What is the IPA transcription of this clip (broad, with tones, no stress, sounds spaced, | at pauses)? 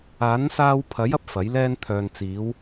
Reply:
aː˨˥ n s aː˧ w pʰ ɐ˨˥ j ɐ˧ p̚ f ɐ˨˥ j l ɛː˥ n t̪ʰ œː˨ n t͡s iː˨˧ w